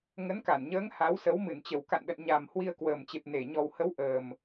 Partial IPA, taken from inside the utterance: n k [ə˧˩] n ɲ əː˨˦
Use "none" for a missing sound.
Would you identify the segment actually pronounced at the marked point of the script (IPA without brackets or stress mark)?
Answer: a˧˩